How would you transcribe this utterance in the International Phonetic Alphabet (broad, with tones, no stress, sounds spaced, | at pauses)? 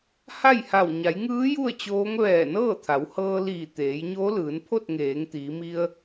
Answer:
h a˥˨ j h a˧˩ w ɲ a˩˧ j ŋ ɯː˧˥ j u˥˨ ə̯ t͡ɕ oː˧˥ ŋ ʋ ɛː˧˩ n ɤː˥˨ t̪ʰ a˩˧ w h ɤː˧ l iː˧˩ t̪ eː˩˧ j ɲ oː˧˥ l ɯː˩˧ n pʰ o˥˨ t̚ ŋ eː˩˧ ŋ t̪ iː˩˧ m i˧ ə̯